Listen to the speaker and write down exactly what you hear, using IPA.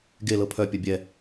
ɡ e l ɤ pʰ œ pʲ œ bʲ ɛ

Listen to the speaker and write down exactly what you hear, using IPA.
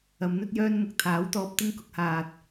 ɐ˨˧ m n̪ ɵ˥ t̚ j œː˥ n m ʊ˨˥ k̚ t̪ʰ aː˨˥ w t̪ ɔː˧ p̚ t̪ ɪ˥ ŋ k ʊ˥ k̚ h aː˧ t̚

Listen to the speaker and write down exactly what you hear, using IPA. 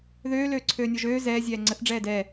ð øː l øː ǀʰ øː nʲ ɔ ʒ øː z ɛː zʲ ɛː ŋ͡ǀ ə θ ɖ͡ʐ ɛː d ɛː

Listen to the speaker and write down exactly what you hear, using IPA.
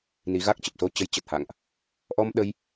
n i˨˦ ɣ a˦˥ k̚ t͡ɕ ə˨˩ p̚ s o˧ t͡ɕ ə˨˦ j t͡ɕ ə˨˩ t̚ h a̰˧˨ ŋ ʔ | ʔ ɔ˧ m ɗ ə˧ j

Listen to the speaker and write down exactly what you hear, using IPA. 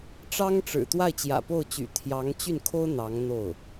ʈ͡ʂ ɑ˥ ŋ ʈ͡ʂ ɻ̩˨˩ t̪ w a˥˩ ɪ̯ t͡ɕ j ä̰˨˩ p o˥˩ ʊ̯ t͡ɕ y̰˨˩ t̪ʰ j ɑ˧˥ ŋ t͡ɕ y˥˩ n kʰ o˥ ʊ̯ n̪ ɑ˧˥ ŋ n̪ o˥˩ ʊ̯

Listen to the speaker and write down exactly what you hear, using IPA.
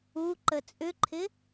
u ǃ ə t͡sʼ ʏ ǃʰ ɪ

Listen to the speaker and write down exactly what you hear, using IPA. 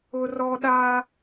ʊ˦ r ɔ˦ ɗ aː˦

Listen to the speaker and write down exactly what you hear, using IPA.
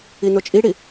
i n o t͡ʃʼ i ɽ i

